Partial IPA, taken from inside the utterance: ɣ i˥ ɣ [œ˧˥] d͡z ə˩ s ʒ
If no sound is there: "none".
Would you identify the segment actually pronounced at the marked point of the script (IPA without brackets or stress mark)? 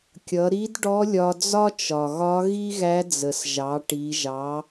æ˧˥